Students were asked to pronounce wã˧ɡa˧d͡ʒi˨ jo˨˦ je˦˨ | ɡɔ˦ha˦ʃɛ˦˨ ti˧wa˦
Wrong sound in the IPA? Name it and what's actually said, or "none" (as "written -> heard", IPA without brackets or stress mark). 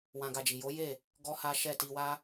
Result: none